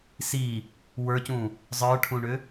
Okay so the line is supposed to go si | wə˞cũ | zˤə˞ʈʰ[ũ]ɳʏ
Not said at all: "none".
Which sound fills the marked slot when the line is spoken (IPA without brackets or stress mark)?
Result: ũ